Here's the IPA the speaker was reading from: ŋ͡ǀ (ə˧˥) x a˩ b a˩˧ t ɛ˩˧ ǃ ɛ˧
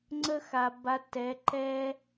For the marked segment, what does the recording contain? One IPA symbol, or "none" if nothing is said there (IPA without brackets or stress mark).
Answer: ə˧